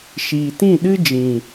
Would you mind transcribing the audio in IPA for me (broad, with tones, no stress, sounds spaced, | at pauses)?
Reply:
ʃ iː˨ t ĩ˦˨ ɗ ɨ˦ d͡ʒ ĩ˨